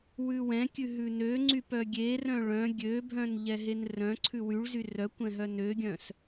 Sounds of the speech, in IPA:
wʉwɛ̃kʲʉ ɦʉnøŋ͡ǀy pœɡʲerœ̃ ɭœ̃ ɡʲøbʱœ̃n ʎɛɦenrœ̃ǀʰʉ wyɭzy rœkʷɛ̃ ɦœnøɡʲœ̃s

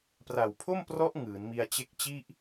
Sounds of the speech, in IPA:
pra˨˩wpʰo˥˩mprɔ˦˥ʔ ŋɯː˩˦n mi˧a̯t͡ɕe˦˥k̚ t͡ɕi˥˩ʔ

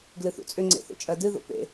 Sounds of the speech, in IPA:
ɡlɨθṵt͡sʼʏ ŋ͡ǀḛθo̰t͡ʃʼɜdɨ ðo̰pḛ

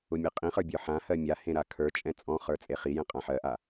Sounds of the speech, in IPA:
ʊmʲeqʼĩχə˞ bʲə˞ħãhɜ mʲahẽ ɾakʰə˞t͡ʃʼɛ̃ t͡sʼɔ̃χə˞ t͡sʼeχijɛ̃ qʼãħɜʔa

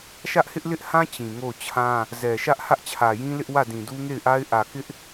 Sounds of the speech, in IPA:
ʃä˦ʔhɪ˦ʔlɪ˦ʔhã˦ t͡ɕĩ˨ŋo˦˨ʊ̯t͡ɕʰã˦ | zɛ˨ʃä˦ʔ hä˦ʔt͡ɕʰä˨jĩ˦lɪ˦ʔ wä˦˨dĩ˨du˦ ŋe˦˨ɪ̯ʔa˦ɪ̯ ʔä˨kɪ˦ʔ

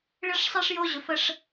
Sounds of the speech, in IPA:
ɭɨ˦ʂsˤi˦ʂjo˦ʑɵ˨f ə˦ʂ

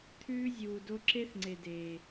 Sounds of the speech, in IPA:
t̪ʰʉː˦ zʲuː˨ do˧ǁe˦θŋ͡ǀe˨ deː˨

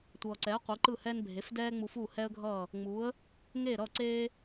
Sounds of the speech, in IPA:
tʷʌː˩ǀɛː˩˥ qʷi˩˥ǃɯ˥˩hɛ˥n bʱe˩˥fdɛː˥ ŋ͡mu˧fuː˥˩hɛ˥ə̯ɡʱʌː˥˩ | ŋ͡muː˩˥ə̯ | ŋeː˥˩ɾʌː˥˩ ǀeː˥

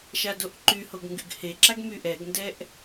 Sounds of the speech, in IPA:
ʃadoʔǃyhoɡ ŋɡyɡheǁaɡ myʔɛɡndɛʔ

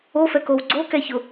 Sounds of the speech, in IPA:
ofɛkow ɡ͡ǀokɛçʊ

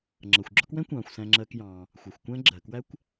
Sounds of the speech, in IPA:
ŋ͡ǁʌ˩xʷɡ͡ǁɔ˦kwɛ̃˥ kʷɑ̃ː˩xʷsæ̃˨ŋ͡ǁɜ˨k jɑ̃ː˩ | xʷɑ˩xʷkʷæ̃˦ ɡ͡ǁɜ˩kwæ˦kʷ

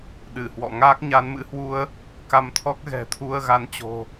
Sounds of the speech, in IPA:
ɗɨ˧˩hwɔ̰˧˨ ŋaː˦˥k̚ɲa˨˦nmɨ̰˧˥hwu˧ə̯ | ka˧mt̪ʰɔ˦˥k̚ ɣɛ̤˨˩t̪ʰu˧ə̯ɣa˨˦nt͡ɕo̤˨˩

